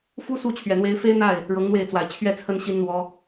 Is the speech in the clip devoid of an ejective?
yes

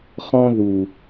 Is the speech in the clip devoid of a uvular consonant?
no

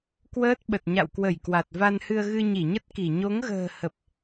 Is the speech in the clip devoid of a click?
yes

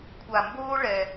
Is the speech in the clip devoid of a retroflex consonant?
no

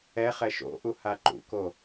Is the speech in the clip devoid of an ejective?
yes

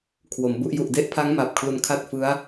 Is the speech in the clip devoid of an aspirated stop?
no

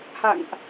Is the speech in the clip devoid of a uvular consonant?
yes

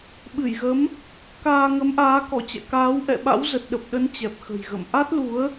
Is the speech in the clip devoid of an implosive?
no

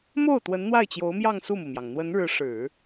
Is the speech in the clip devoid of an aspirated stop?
yes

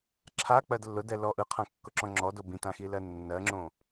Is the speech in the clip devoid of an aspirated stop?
no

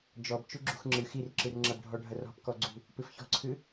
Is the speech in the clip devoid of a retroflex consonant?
no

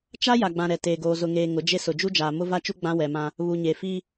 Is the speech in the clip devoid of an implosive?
yes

